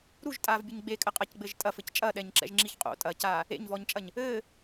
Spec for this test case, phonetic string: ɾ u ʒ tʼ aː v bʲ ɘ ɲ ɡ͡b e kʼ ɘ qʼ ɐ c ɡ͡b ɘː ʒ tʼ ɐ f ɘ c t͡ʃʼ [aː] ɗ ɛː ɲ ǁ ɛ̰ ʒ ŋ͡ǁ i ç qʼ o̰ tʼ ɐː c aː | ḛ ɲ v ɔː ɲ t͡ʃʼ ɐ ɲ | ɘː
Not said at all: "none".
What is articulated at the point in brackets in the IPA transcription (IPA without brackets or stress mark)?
ɐː